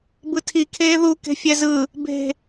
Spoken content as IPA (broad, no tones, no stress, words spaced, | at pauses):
bɯtʰikʰeː ðu ke̤fʲɛzɯ | be̤